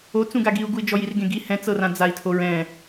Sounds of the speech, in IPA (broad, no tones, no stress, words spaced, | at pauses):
o t͡sũɡaɡiu̯ɡui̯ d͡ʒɔjirɡẽɡi hɛ̃t͡sɤrã d͡zai̯tʰoɹɛ̃